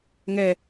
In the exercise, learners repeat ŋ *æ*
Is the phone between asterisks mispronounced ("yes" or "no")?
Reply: yes